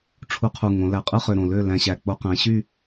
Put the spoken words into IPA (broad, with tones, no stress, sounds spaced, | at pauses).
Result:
ʈ͡ʂʰ u˧ qʰ u˨˩ ŋ õ˩˧ l æ˨˩ qʼ ɯ˥˨ χ ø˨˩ ɾ õ˨˩ l ø˥˨ l æ̃˧ ɕ æ˨˩ k͡p o˧ q æ̃˩˧ ɕ y˥˨